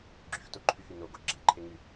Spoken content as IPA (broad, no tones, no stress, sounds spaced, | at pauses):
ɡ͡ǁ y x t o ǃʰ y x y n o ɡ o ɡ͡ǁ ɛ ǃʰ e ŋ y